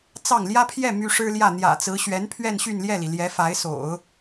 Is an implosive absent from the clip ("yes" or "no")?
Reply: yes